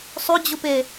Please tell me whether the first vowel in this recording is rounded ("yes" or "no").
yes